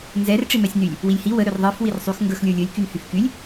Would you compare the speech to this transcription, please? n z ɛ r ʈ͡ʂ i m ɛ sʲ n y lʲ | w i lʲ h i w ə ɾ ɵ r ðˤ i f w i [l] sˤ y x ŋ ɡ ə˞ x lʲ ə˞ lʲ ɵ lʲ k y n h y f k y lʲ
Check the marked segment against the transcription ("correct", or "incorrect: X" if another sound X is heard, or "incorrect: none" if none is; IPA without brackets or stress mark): incorrect: r